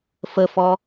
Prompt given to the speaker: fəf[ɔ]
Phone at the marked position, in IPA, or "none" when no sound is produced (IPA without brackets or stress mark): ɔ